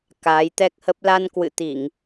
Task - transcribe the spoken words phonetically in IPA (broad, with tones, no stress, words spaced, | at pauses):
kaː˨˦jt̪ɛ˦˥k̚hə˦˥p̚ la˧nkwɨ̰˧˨t̪i˧˩˨ŋ